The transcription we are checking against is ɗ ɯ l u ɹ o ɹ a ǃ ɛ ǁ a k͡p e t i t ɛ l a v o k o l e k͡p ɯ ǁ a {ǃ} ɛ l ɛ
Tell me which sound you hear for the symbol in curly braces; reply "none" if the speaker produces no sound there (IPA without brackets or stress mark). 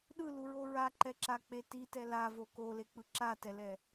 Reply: t